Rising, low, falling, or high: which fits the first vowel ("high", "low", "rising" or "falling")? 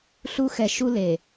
high